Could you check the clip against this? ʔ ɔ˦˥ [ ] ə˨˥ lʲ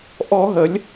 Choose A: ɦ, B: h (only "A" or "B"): A